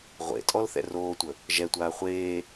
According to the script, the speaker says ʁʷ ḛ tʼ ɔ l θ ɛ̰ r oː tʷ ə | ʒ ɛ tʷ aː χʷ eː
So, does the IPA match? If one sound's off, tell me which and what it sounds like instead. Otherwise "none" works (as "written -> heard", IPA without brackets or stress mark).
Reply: none